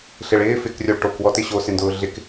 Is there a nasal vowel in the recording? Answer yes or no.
no